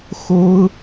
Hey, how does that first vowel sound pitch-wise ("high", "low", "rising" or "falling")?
high